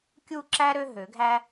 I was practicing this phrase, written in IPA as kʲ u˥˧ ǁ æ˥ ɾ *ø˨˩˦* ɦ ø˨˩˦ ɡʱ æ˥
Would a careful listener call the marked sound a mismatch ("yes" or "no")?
yes